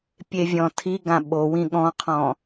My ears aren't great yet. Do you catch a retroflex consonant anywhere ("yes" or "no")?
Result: no